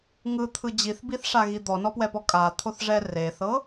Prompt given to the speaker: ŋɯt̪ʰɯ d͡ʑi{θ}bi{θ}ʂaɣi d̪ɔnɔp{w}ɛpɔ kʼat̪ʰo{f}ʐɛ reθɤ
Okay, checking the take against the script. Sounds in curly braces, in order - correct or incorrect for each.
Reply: correct, correct, correct, incorrect: θ

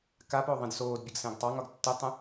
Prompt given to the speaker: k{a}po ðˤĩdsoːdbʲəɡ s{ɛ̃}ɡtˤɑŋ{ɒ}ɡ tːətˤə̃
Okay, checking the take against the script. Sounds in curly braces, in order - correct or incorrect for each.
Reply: correct, correct, correct

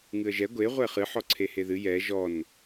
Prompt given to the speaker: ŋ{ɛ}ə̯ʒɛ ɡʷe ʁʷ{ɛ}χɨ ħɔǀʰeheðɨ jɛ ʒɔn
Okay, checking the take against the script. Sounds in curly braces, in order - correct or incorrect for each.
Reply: incorrect: ɨ, correct

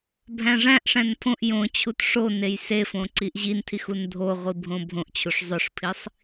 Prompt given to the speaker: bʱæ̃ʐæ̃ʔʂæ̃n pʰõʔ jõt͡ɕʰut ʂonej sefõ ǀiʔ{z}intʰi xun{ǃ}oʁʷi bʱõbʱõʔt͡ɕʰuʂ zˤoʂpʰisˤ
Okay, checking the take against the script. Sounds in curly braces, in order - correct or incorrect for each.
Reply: incorrect: ʑ, incorrect: dʱ

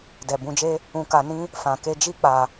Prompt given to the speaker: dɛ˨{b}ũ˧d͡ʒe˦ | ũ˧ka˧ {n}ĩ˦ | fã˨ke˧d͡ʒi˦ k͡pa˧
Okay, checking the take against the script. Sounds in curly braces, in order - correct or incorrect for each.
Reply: correct, correct

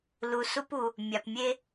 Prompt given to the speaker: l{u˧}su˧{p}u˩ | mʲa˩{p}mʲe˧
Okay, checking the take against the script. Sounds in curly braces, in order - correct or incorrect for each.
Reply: incorrect: u˩, correct, correct

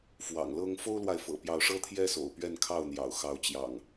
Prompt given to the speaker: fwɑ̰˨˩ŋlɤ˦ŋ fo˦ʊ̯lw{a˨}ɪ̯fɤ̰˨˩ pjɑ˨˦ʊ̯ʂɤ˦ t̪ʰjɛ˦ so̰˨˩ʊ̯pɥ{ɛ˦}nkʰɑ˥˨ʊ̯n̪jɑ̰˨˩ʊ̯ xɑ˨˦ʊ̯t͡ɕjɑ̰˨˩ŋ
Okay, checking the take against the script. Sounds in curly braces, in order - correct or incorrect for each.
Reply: correct, incorrect: ɛ˥˨

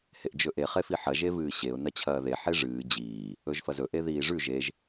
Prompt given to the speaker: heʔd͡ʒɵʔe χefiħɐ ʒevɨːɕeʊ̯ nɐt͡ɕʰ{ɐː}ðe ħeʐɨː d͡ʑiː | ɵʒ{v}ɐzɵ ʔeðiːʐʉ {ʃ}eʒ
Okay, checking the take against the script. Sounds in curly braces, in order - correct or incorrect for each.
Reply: correct, incorrect: f, incorrect: ʒ

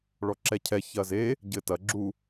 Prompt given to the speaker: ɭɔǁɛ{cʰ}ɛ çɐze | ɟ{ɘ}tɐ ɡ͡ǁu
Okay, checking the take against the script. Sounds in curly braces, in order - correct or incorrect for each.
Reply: correct, correct

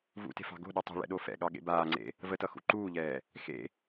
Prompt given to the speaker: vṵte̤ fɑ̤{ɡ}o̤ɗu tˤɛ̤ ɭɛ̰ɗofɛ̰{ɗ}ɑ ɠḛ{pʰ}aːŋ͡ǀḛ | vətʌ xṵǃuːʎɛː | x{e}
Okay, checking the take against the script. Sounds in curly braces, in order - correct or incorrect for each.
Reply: correct, incorrect: ɠ, incorrect: b, incorrect: ḛ

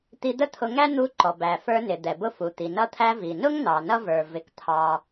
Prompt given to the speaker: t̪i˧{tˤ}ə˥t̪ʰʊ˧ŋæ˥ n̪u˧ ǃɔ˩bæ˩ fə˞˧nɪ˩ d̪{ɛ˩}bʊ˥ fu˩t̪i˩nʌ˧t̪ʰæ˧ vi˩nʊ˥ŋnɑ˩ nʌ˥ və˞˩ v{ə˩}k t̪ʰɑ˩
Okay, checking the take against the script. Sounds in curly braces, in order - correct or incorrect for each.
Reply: incorrect: d̪, correct, incorrect: ɪ˩

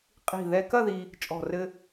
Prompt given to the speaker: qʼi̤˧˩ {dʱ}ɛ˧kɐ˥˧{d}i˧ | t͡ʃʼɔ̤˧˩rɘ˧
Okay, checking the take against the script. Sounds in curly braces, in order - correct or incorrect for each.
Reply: incorrect: ð, incorrect: ð

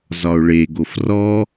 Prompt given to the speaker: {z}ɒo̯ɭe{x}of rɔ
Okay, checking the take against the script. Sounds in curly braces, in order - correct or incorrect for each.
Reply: correct, incorrect: ɡ

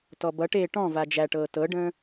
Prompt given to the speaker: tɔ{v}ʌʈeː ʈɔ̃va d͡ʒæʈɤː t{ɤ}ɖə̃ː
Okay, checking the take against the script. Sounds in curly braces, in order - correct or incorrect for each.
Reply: incorrect: b, correct

